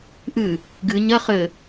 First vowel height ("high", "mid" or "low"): high